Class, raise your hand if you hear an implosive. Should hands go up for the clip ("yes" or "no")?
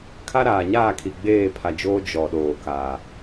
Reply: yes